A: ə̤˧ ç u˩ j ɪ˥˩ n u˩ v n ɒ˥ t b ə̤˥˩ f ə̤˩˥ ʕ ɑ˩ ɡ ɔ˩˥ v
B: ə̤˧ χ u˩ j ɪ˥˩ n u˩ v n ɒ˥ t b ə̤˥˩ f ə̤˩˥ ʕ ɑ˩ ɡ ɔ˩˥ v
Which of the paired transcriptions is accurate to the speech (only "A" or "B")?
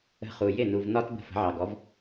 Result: B